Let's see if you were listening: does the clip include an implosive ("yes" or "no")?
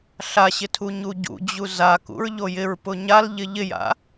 no